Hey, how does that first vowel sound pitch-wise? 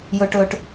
low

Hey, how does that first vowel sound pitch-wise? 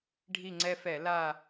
falling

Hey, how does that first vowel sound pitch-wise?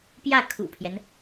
falling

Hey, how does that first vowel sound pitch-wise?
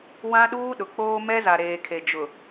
high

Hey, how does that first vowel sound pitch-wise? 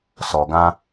low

